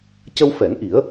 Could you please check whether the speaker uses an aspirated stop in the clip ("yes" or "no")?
no